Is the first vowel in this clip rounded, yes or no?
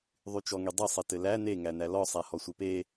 yes